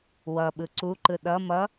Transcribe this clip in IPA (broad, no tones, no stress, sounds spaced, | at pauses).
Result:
w ʌ ɓ ɯ ǀ u ǃ ɯ ɗ ʌ m ʌ